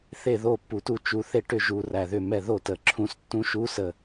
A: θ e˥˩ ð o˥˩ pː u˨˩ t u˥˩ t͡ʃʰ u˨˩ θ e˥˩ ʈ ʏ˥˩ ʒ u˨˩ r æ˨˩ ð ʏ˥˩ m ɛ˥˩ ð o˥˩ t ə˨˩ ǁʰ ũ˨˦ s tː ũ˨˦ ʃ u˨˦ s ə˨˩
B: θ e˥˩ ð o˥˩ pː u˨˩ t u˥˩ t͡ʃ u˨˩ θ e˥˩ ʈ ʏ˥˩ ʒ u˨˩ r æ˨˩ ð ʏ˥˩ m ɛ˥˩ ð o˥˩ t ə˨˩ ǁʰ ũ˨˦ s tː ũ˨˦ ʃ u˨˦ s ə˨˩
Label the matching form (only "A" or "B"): B